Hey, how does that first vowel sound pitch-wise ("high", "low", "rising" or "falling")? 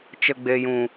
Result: low